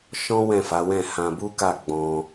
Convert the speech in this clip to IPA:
ʃ ɔ̃˦ w ɛ̃˦˨ f a˨˦ w ɛ̃˦˨ h ã˧ b u˦ k a˦˨ ɡ͡b ɔ̃˧

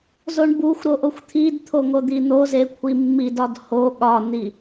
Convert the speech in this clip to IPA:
z o ɳ b u xʷ ɾ o ʔ o xʷ t̪ʰ i d t̪ʰ o ŋ o d̪ i n̪ o z e kʷʰ i mː i d ɒ d h o ɠ ɒ n̪ i

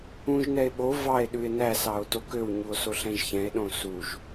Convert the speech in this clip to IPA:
ũ ʒ n ɛ e̯ ɓ o v ɑ e̯ ɗ ʉ e̯ n æ s ɑ o̯ t o k ø w ɲ u o̯ s o ɬ ɛ̃ ʒ ç ɛ̃ e̯ ɗ õ s u ʒ

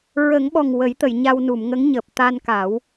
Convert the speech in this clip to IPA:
ɹ ə˨˩˦ ŋ ɓ ɔ˨˩ ŋ w ə˨˩˦ j t̪ ə˨˩˨ j ɲ a˧ w n u˨˩˨ m ŋ ə˧˥ ŋ ɲ əː˨˩ p̚ t̪ a˧ n k a˨˩˦ w

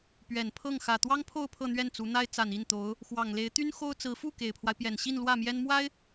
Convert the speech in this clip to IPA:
p ɥ ɛ˨˩ n pʰ ɤ˥˩ ŋ x ä˨˩ t̪ w ɑ˥ ŋ pʰ o˥˧ ʊ̯ pʰ ɤ˥˧ n̪ ɥ ɛ˥˩ n t͡s u˧˥ n̪ a˥ ɪ̯ t͡s a˨˩ n i˥˩ n t̪ o˧˥ ʊ̯ | x w ɑ˨˩ ŋ l e˧˥ ɪ̯ t̪ y˥ n x o˥ ʊ̯ t͡s ɹ̩˧˥ f u˥˩ k e˨˩ ɪ̯ pʰ w a˦ ɪ̯ p j ɛ˨˩ n ɕ i˥˧ n l w ä˥˩ m j ɛ˥ n m w a˥ ɪ̯

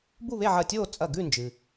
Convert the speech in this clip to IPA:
b u˥˨ β e˥˨ ʕ ɐ˧˩ tʲ oː˥˨ t͡sʼ ɐ˧˩ ɡ ʉ˥˨ n d͡ʒ ɨ˩

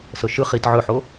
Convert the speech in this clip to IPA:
s ɤ ʃ ɯ χ i t ʕ ɵ ħ o

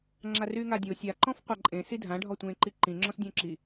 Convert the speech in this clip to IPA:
ŋ͡ǁ a r yː ŋ a dʲ o sʲ a ǃ ɔ̃ f qʷ a ǃʼ ẽ s i dʱ ã ɖʱ ɔ tʷ ẽː ǃ i ǃ ĩ ŋ͡ǁ ɔ̃ s dʲ õ ǁ i

